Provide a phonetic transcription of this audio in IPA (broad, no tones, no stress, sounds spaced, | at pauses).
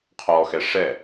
qʰ ɔ x ɛ ʂ ɛ